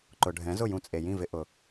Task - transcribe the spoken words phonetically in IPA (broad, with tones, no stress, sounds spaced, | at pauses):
ǃ ʊ˩ ɖʱ ɛ̃˩˥ z ʊ˥˩ j ũ˧ t͡sʼ e˩ j ĩ˥˩ v ɪ˧ ʔ ʊ˩